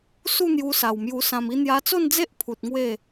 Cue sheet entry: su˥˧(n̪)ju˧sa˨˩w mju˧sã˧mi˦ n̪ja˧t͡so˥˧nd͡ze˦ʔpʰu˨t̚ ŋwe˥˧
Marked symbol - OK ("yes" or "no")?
yes